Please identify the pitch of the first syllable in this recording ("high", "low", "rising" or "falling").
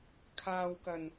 low